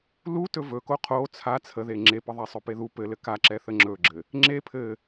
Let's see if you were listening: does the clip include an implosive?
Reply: no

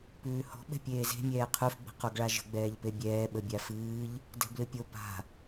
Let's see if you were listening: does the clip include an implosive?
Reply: yes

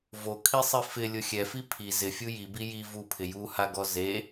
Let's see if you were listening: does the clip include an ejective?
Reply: no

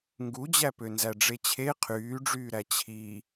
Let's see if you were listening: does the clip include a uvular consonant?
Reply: yes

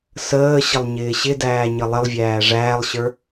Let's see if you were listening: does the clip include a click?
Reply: no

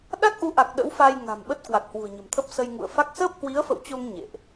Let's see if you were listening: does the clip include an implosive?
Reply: yes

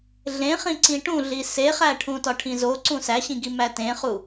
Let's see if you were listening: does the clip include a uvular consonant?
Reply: yes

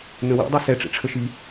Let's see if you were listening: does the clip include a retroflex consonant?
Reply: yes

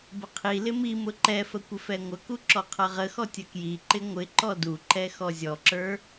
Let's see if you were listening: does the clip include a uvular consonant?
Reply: yes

